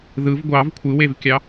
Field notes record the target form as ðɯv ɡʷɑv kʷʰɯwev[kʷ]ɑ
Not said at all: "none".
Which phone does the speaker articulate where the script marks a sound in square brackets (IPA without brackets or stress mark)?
kʲ